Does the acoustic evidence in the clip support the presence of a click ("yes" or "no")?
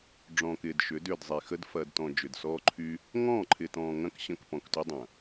yes